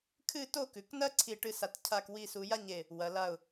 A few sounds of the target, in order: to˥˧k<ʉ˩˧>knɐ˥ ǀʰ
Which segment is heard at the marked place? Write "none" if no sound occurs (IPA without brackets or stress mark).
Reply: ʉ˩˧